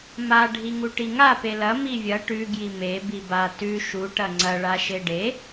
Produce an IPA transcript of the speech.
ma ɖʱiŋuʈiŋa pelɐ mivʲɐ ʈʉ ɡjime biba tʉ ʃu ʈɐŋ͡ǀɐ ɭaʃeɖe

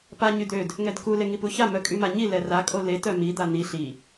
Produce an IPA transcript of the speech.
pa ɲyd̪ød | ŋɛdku leŋipuça mœkʼymaɲi lɛra kʼole tœmi d̪an̪i ɬi

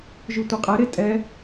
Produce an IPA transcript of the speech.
ʒʉtʷeqʼɛ ɾetʼɛ

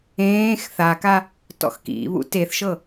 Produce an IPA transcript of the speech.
ẽːx θaka | tɔ̰xkḭβṵ teθʃɤ

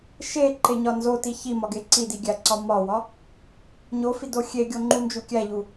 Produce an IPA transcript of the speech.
ʃeǃeɲɒ nzoti çimɒɡe ǀidiɡʲæǀɒ mɒwɒ | ɲofido xʲeɡʲoŋ͡ǃund͡ʒu kʲæʎu

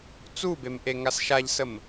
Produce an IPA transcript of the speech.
t͡subem ʔeŋasʃaʎsəm

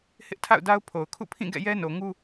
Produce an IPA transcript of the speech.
hɪ˦ʔtʰa̰˦˨ʊ̯da˦ʊ̯pʰo˨ʊ̯ kʰṵ˦˨pʰĩ˦˨ ɡɛ̰˦˨jɛ˦no˨ŋu˦

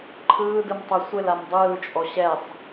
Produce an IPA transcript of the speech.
ǃʰɯːdɯm tˤʏ sʷɪl amdˤɯːt͡ʃʼɔ ɕɛsˤ

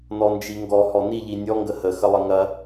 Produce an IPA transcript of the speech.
nɔnd͡ʒiŋɡɔ hɔniʎi nʲɔŋɡə hə xəlˠəŋɐ

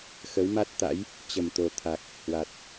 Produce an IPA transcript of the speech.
xə˨˦wma˦˥t̚t̪a̰˧˥j | t͡ɕə˨˩mt̪o˨˩t̪ʰa˨˩k̚ | hwa˨˩t̚

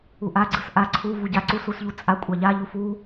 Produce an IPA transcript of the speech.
uʔa ɡ͡ǀɯsʔa ǀʰu vuɟa ǀus usʎut͡sʼa kʷʼaʎa ʎufu

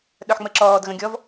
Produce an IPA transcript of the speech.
ɗœħŋ͡məǁɔːd ɣə̃ɡʲɔv

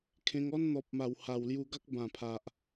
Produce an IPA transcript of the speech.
kʰẽ˧ŋɔ˦n n̪ɔ˨p̚ma˨˩w ha˨˩wlju˧ɡa˦k̚ bã˨˩pʰa˨ʔ

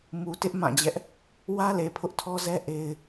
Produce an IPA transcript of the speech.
mu˨tɪ˦ʔ mã˦˨d͡ʑɛ˦ʔ | wä˦le˨ pʰʊ˦ʔtʰɔ˦zɛ˦ ʔe˦ɪ̯

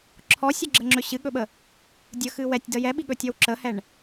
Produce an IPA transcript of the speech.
ǁʰɔsʲəɡ͡ǁəŋ͡ǁɵ ɕɨɠɵɓə | dʲəxɨ wɛtʲdə jɛɓiɠɵtʲɔw ǁəhɛɳ

